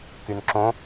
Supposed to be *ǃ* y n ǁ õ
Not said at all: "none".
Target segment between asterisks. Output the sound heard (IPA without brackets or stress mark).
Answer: k